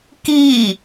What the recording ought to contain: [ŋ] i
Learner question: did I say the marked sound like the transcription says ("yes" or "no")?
no